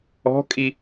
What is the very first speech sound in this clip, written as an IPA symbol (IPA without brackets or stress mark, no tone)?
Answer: ɔ̤